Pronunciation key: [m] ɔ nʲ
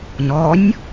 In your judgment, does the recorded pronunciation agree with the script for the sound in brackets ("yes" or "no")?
no